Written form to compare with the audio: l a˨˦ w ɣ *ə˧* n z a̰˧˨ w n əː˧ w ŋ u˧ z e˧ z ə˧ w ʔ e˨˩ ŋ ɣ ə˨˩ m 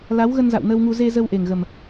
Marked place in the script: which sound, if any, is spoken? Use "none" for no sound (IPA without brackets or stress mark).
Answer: ə˧